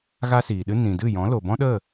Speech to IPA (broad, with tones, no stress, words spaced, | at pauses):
ɣa˦siː˨ɗɨ˦ nĩ˨ dɨ˦˨jɔ̃˨˦ lo˨ bɔ̃˦ɗə˦˨